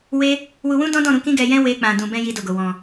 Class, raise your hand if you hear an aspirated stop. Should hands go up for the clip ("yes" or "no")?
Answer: no